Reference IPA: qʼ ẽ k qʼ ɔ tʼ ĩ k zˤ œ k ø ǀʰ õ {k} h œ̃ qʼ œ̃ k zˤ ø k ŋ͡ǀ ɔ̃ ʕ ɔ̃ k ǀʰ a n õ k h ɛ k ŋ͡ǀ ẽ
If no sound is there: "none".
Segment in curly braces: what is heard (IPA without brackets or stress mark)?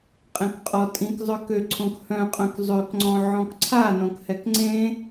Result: k